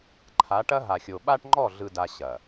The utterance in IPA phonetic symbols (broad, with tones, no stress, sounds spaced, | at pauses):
ǃʰ a˨˦ ʈ ɐ˦ ɦ a˨ xʲ o˨ ɓ a˦ ʈ ŋ͡ǃ ɔ˦˨ ɮ ɯ˨ d a˨ ɕ ɐ˨